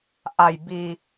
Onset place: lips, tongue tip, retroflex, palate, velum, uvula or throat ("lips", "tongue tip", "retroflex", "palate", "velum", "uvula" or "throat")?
throat